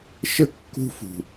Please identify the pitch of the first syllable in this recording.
high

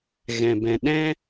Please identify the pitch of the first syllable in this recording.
low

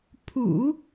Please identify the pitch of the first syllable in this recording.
low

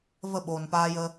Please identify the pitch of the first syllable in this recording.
falling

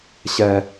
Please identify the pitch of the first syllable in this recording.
low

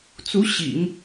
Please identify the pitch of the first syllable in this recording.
rising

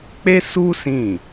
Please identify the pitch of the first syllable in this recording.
high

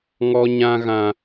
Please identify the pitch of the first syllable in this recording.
high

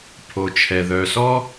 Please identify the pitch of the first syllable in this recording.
low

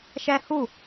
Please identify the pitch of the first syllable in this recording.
high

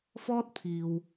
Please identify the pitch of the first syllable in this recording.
high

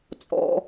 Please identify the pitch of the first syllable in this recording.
high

